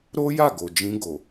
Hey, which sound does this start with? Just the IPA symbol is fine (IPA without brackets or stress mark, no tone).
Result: ɾ